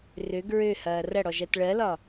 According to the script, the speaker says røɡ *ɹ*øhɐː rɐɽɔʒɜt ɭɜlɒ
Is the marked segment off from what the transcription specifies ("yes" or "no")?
no